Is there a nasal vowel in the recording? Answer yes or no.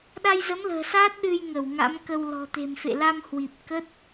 no